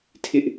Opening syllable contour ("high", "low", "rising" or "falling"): high